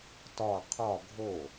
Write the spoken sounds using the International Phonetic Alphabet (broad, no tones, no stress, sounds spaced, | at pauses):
t ɒ qʰ ɒ ɡʱ o